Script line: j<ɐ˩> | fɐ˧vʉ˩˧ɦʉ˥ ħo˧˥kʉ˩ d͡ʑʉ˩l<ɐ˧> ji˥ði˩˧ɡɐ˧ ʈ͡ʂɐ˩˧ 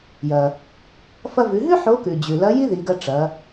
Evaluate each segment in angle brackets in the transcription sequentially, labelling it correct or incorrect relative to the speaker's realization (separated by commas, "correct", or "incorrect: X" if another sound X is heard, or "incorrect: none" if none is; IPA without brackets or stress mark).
correct, incorrect: ɐ˧˥